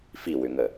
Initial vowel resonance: oral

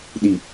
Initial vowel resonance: oral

